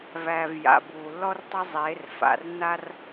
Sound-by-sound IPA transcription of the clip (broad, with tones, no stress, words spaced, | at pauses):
væː˨vja̰˨ buː˨lːɔ˦rtˤɐ˦ zˤeː˨˦r fa̰˨rnːa˦r